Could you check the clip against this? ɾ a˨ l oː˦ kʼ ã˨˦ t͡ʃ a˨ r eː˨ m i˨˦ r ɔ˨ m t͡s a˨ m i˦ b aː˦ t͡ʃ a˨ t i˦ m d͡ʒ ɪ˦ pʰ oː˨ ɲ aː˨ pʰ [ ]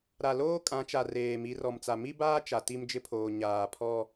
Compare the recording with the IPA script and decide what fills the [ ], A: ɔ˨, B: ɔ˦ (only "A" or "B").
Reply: B